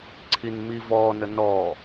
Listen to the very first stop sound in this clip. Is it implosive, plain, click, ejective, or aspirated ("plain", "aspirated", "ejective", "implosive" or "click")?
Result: click